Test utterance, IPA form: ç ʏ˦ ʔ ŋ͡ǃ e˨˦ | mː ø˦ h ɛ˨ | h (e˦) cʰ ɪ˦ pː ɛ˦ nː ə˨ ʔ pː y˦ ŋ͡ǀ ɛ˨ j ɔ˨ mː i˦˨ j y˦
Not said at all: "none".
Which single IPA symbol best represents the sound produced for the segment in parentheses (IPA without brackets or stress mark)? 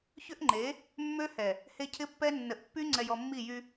e˦